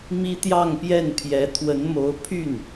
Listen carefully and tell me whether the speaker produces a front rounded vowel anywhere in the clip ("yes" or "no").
yes